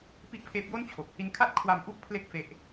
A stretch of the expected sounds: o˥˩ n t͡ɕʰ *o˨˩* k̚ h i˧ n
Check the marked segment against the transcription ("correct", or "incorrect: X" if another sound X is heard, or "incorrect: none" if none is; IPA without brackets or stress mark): correct